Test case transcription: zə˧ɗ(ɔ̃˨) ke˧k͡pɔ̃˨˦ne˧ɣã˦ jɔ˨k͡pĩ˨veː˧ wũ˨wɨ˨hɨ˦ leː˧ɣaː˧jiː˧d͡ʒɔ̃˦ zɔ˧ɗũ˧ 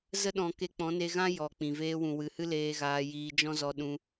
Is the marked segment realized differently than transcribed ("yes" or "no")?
no